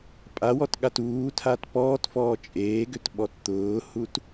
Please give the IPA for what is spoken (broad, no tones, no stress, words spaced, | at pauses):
pʼawɔtɠat uːtʰat pɔːtfɔː t͡ʃʼeːɡʏtɓɔt t̪ʊːhut